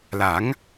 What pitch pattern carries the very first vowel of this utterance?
rising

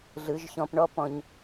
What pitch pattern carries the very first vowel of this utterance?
rising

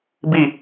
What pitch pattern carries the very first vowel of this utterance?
falling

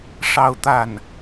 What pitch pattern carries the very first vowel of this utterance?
falling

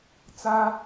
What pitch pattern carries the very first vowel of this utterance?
high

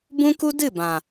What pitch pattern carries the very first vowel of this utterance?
high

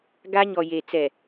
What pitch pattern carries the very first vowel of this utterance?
high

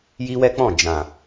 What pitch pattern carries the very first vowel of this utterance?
high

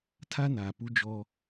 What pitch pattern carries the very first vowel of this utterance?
high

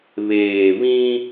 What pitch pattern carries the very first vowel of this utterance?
low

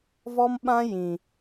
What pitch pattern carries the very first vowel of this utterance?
high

